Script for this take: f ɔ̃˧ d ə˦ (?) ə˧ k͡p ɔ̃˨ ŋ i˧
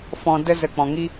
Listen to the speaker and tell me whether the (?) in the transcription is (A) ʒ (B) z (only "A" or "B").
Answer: B